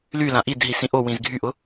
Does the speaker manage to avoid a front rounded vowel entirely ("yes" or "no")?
no